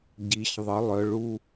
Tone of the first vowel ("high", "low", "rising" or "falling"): rising